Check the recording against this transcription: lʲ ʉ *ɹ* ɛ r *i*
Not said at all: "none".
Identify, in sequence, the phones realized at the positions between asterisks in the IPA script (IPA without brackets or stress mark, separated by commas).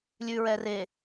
ɹ, e